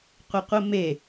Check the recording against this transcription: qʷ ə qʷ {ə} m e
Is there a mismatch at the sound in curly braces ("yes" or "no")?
no